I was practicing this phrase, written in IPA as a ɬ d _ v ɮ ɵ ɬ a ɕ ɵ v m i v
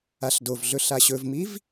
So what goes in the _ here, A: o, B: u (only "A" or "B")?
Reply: A